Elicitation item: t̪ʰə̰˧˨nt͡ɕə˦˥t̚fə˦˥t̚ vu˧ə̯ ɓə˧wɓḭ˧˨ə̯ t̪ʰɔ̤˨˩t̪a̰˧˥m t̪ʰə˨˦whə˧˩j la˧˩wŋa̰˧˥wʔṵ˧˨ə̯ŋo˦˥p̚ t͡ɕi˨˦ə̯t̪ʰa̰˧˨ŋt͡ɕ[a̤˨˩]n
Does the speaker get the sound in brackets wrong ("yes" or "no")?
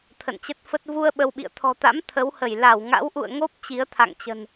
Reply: yes